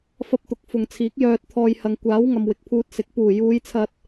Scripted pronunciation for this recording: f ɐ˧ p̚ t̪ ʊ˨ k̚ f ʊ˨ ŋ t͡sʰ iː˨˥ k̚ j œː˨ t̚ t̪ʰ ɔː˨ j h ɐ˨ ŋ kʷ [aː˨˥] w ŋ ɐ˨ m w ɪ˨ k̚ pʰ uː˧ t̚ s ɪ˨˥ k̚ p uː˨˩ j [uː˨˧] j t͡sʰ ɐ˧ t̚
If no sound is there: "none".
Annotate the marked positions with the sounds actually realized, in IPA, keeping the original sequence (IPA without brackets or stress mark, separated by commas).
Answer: aː˨˥, uː˨˧